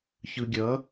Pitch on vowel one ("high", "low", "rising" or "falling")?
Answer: low